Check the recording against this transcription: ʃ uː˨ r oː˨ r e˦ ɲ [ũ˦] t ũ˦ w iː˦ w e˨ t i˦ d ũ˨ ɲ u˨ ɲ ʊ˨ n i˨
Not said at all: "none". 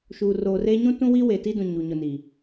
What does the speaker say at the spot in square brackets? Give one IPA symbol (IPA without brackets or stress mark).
ũ˦